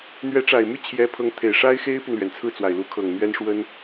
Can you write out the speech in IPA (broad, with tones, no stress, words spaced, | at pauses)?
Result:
n̪ɥɛ˧˥ ʈ͡ʂa˨˩ɪ̯my˥˩ t͡ɕʰjɛ˧˥ pʰɤ˧˥ŋt̪ʰe˨˩ɪ̯ ʂa˥ɪ̯xe˥ɪ̯py˨nlɥɛ˩n t͡sʰɹ̩˥˩t͡swa˨˩ɪ̯lu˧˥ kʰɤ˨˩ŋn̪ɥɛ˥n ʂwə˥n